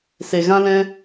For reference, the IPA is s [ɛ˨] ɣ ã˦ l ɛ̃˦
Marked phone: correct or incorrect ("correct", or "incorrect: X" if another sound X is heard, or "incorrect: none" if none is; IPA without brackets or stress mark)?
incorrect: e˨